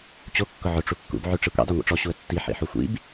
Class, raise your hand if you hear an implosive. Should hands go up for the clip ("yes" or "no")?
no